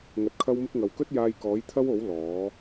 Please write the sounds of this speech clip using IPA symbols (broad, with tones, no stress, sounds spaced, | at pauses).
ŋ ɐ˧ t̚ kʰ ɐ˥ w m ɪ˥ k̚ ŋ ɐ˨ w k ɵ˥ t̚ j aː˧ j k ɔː˨˥ j t̪ʰ ɐ˥ w o˨˥ w l ɔː˨˥